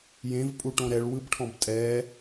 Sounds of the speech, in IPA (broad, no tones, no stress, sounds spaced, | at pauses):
j ẽ v pʼ u ʈ õ ɾ ɛ ɭ w ɯ b ʈʰ ɔ̃ b tʼ ɛ